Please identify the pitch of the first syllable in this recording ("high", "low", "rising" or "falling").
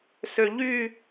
low